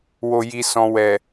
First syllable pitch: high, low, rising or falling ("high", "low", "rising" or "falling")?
low